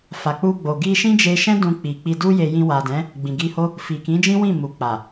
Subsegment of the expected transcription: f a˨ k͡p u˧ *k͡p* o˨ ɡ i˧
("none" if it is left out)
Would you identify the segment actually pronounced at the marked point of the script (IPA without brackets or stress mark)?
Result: ɡ͡b